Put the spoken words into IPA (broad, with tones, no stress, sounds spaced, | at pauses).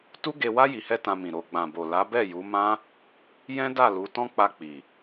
t u˦ ɡ e˧ w a˦ j i˧ h ɛ˦ t ã˧ m ĩ˨ ɾ o˨ ɡ͡b ã˨ b o˨ l a˨˦ b ɛ˦˨ j u˨˦ m ã˦ | j ɛ̃˦ d a˦˨ l u˨˦ t ɔ̃˦ k͡p a˧ k͡p i˨